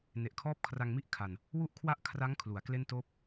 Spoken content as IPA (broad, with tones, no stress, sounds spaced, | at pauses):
n e˨˩ ʔ kʰ ɔː˥˩ p̚ kʰ r a˧ ŋ m i˥˩ ʔ kʰ a˨˩ n | w u˦˥ ʔ kʰ w a˦˥ ʔ kʰ r a˦˥ ŋ kʰ l u˩˦ a̯ k l e˥˩ n t oː˥˩ p̚